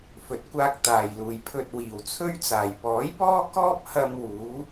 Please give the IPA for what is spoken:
f ɵ˨ t̚ kʷ aː˧ k̚ t̪ aː˨ j l uː˨ j pʰ ɵ˨ t̚ w iː˨˩ w t͡sʰ ɵ˥ ɥ t͡s aː˨˩ j p ɔː˨˥ j p ɔː˥ k ɔː˥ p̚ h ɐ˧ m w uː˨˥

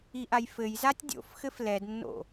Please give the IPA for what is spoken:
i ʔ a j f ɘ j z a tʲ dʲ o̰ f x ɘ f l ɛ d nː o̰

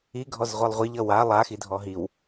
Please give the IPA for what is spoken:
i ɡʱ ɔ z ʁʷ i lˠ ʁʷ i ʎ ʌ w a lˠ a x i dʱ ɔ ɦ i w

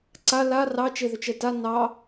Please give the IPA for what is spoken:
ǀ a l a r ɑ t͡ʃ e ð ʏ t͡ʃ ɛ t a n ɑ

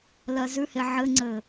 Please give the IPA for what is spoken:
l ɜ z ʉ h e ʕ ɘ ŋ͡ǀ ɘ

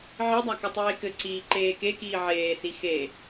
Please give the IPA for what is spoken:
ʕ i dˤ a k ɘ tˤ eː k ɘ ǀ iː ǃ eː k e k iː ʕ eː s i x e

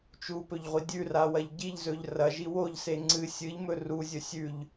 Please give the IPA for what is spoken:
t͡ʃ u p ɵ ʎ ʁʷ i dʲ ʉ r a w ɐ ʎ ɟ i ʎ z ɵ ʎ r ɐ ʒ i w o ʎ s e ŋ͡ǀ ɨ sʲ ɨ ʎ m ɵ r u zʲ ɵ sʲ ʉ ʎ

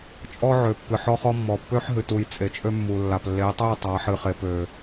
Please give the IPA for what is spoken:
t͡ʃʼ ɔ˦ ʕ ø˨ pː ɨ˨ ħ ɔ˦ χ ɔ˦ mː ɔ˨ pː ø˦ ħ ɦ ɨ˨ t u˨ j t͡sʼ e˨ t͡ʃʼ ø˦ mː u˨ lː a˨ p lː e˨˦ tˤ e˦˨ tˤ a˨˦ ħ ɨ˨ χ e˨ p ø˨

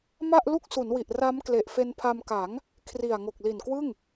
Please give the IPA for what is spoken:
m a˥˩ ʔ l u˥˩ k̚ s u˩˦ n w i˨˩ ʔ r a˦˥ m k l e˨˩ ʔ f e˧ n pʰ a˧ m k a˩˦ ŋ | kʰ r i˨˩ a̯ ŋ o˨˩ k̚ l i˨˩ n k w ɯ˥˩ ŋ

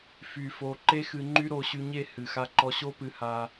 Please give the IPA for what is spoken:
f y˧ f o˧ ǃ e˦ x ɨ˧ ŋ͡ǃ y˦ ɾ o˧ ɕ y˧ ɲ e˦˨ h ɨ˨ x a˧ ǃ ɔ˧ ɕ o˦ p ɨ˧ h a˧

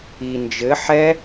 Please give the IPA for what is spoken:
i n d͡ʒ ɘ ħ ɛ

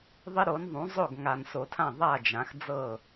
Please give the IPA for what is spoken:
ðˤ ɪ˦ ɾ o˩˥ n ðˤ ũ˩˥ zˤ o˥˩ ɡ ŋ a˨ n s o˨ tʰ ã˥˩ ðˤ a˥˩ d͡ʒ ã˩˥ x d͡z ɤ˥˩

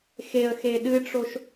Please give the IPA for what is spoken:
x e ə̯ x e ɗ ɨ ʈ͡ʂ o ʃ

